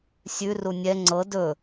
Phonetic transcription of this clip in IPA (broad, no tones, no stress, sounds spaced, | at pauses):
sʲ ʉ r u nʲ ɛ ŋ͡ǀ ɤ d ɵ